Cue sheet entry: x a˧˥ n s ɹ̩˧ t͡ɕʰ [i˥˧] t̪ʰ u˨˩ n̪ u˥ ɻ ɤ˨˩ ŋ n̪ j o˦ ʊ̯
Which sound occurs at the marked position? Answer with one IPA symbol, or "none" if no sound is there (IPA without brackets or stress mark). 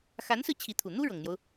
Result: i˧˥